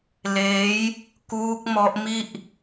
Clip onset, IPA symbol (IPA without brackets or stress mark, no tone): l